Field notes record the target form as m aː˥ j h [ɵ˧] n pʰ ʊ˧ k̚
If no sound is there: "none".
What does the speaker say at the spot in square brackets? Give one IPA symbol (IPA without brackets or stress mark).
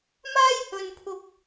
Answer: ɵ˧